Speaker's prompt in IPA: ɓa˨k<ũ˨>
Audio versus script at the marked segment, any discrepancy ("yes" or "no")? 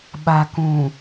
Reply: no